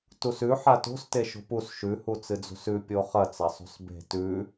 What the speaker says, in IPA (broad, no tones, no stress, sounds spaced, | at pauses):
t u s ʉ ħ a t o̤ s t e ʃ o̤ p u s ʃ ʉ h u t͡s ɨ d͡z ṳ s ʉ pʲ o χ ɐ t͡s a sˤ ṳ s b e̤ t ʉ